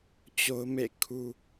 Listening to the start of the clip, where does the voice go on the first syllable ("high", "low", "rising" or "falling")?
high